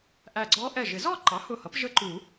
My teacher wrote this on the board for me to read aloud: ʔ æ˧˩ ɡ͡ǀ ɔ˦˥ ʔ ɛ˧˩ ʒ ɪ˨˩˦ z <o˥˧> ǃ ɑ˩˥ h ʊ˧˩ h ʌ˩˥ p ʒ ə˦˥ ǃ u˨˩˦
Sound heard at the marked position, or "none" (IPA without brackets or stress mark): ɔ˥˧